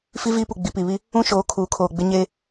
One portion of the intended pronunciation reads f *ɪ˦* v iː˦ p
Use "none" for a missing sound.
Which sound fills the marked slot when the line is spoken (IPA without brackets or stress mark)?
i˦